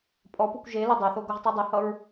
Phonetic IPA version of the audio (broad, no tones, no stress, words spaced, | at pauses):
pʼɔpukʷ ʒe lɵdˤaθo ɡoʁtˤidˤɵhʌɹ